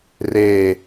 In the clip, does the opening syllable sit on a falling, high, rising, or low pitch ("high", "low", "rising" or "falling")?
falling